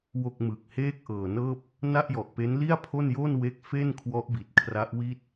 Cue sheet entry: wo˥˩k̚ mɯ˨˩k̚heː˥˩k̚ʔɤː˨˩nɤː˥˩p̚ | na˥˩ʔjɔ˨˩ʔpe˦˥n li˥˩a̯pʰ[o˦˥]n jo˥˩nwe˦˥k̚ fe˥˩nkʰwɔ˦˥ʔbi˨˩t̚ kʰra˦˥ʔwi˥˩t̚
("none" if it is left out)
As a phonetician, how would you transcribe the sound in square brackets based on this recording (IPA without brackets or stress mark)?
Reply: o˥˩